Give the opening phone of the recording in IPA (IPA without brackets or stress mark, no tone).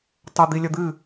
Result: tˤ